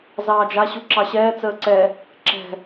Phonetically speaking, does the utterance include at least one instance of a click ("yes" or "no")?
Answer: yes